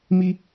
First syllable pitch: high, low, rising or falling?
high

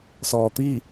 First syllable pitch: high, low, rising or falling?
low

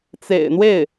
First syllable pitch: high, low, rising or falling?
low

